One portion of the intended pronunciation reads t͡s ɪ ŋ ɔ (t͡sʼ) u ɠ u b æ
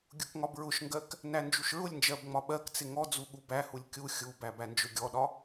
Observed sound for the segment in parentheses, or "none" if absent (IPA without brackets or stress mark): d͡z